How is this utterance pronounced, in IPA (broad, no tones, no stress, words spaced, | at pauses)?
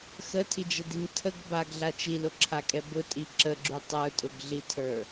xətʰid͡ʒədiɲ tʰəɡ baɡɮa t͡ʃilʊǁʰakʼɛ bʊtʼi ǁəɡ͡ǁy tˤə˞tʼʊɡɮitʰə˞